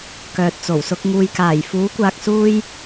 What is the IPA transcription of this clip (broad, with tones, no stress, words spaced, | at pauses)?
kœː˨t̚t͡so˨˩wsʊ˧k̚ ŋuː˨jkaː˨˩j fuː˨˥kʷaː˨k̚suː˧j